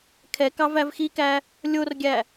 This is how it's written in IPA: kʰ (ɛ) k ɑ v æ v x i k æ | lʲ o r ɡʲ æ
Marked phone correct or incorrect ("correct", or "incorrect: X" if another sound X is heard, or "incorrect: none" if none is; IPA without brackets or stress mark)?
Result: correct